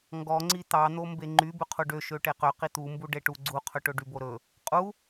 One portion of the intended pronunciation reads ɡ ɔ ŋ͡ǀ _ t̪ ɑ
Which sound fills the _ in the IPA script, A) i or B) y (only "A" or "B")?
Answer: A